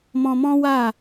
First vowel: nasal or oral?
nasal